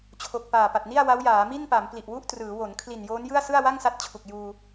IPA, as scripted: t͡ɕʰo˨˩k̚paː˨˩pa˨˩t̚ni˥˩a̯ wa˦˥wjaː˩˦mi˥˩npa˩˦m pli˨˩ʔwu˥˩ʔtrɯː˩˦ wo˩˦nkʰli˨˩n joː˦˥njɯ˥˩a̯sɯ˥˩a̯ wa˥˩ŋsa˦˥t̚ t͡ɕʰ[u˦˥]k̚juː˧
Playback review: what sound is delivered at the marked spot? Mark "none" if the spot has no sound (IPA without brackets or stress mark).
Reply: u˨˩